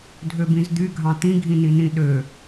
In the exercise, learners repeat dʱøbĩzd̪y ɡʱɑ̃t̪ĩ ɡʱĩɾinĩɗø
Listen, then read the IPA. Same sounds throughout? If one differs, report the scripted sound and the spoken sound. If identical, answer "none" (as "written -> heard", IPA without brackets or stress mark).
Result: ɾ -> n